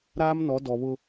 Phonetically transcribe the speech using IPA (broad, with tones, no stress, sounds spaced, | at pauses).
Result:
ɾ aː˦ m n ɔ˨˦ d ɔ˨ β ʊ˦